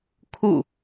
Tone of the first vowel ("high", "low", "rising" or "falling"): falling